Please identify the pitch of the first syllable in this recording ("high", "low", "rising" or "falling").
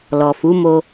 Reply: low